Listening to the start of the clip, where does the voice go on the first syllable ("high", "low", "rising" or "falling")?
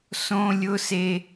high